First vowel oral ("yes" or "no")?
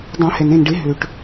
no